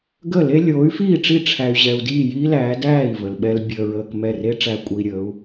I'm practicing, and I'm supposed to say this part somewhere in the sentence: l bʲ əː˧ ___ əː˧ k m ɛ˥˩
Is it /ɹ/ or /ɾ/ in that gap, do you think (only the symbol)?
ɹ